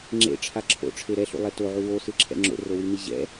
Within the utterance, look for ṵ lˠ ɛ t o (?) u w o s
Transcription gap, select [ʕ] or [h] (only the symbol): ʕ